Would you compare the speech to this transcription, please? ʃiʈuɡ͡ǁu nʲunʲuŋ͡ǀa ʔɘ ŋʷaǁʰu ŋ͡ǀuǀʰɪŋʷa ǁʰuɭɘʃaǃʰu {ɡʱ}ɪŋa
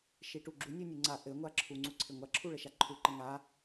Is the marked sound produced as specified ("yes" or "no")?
no